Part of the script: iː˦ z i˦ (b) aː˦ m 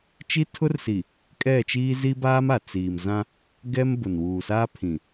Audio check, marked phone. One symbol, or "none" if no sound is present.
b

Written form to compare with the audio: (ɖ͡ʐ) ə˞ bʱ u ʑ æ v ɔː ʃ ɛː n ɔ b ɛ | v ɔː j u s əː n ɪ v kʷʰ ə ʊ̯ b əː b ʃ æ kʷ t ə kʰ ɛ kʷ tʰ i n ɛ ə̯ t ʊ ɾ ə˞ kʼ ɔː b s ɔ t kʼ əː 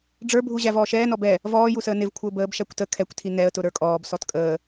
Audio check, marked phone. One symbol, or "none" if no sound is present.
ɖ͡ʐ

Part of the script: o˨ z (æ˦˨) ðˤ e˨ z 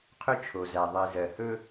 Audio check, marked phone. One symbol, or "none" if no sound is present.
æ˨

